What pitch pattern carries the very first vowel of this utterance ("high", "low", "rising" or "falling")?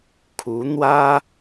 rising